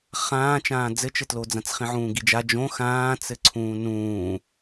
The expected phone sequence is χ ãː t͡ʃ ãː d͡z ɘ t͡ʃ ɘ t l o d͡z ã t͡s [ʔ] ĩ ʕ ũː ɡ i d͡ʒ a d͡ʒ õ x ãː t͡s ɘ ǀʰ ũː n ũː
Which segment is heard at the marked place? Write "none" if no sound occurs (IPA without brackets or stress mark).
χ